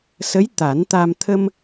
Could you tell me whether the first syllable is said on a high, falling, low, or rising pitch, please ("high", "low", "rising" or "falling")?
rising